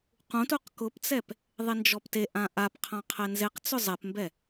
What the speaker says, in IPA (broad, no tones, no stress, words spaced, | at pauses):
qũtuq kʊpt͡sɛp | ðˤend͡ʒɔpteʔã ʔapqʰã qʰɛnzeqt͡sʊ zˤɛpmbɛ